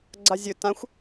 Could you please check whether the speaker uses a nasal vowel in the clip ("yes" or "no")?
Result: yes